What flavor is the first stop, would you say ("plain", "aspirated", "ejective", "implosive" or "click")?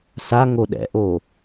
implosive